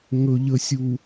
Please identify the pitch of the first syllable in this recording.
low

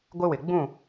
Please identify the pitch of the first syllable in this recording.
high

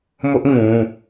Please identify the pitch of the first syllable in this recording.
high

